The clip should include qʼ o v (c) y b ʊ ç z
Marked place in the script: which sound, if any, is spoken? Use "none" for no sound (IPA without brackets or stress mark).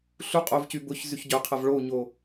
c